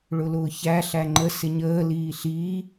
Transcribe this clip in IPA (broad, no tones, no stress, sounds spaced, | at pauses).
ɭ ʊ l ʊː ç æ ɬ æ ŋ͡ǃ ə s ɪ ɲ əː l iː ɬ iː